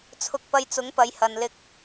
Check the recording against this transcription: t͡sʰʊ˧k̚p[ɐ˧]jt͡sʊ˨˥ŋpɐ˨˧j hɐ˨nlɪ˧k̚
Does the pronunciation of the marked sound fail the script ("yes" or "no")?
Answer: no